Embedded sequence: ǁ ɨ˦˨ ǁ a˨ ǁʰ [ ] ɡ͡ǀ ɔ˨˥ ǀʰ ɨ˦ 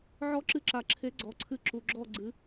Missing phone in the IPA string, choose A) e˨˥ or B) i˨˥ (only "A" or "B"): A